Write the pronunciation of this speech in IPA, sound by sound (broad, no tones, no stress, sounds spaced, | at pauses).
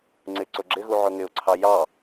ŋ͡ǀ ɪ ǀ ʊ ɡ͡ǁ ɪ ɣ u ʕ ʊ ŋ ɪ ʊ̯ ǀʰ ɑ j ɑ